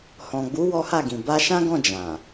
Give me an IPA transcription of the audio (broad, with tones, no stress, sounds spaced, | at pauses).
h ɔ̃˨ ɡ͡b u˨˦ w ɔ˦ h a˦˨ ɡ ĩ˨ b a˧ ʃ ã˦ ɡ ɔ̃˦˨ d͡ʒ ã˨